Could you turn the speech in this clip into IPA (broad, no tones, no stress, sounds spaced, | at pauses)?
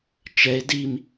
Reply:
t͡ʃ ɛ e̯ d i m